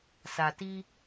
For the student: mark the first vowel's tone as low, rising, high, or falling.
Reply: low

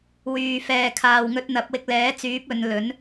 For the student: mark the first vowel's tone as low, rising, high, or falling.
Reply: low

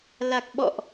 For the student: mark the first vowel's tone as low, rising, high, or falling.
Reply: low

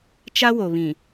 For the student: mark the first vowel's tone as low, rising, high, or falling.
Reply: high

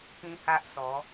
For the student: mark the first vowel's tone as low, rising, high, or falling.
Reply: high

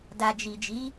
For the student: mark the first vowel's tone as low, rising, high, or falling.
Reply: low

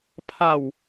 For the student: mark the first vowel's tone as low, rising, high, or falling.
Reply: low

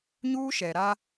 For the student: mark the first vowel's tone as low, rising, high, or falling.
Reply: high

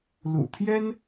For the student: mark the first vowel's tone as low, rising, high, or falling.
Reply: low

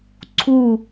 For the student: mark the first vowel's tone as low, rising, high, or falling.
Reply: falling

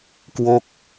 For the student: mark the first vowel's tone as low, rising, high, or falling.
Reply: falling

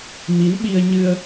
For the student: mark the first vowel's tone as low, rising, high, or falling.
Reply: rising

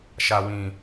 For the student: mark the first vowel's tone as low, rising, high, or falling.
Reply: low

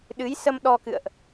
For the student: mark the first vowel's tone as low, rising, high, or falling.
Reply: rising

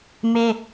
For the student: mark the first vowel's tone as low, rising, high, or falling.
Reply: high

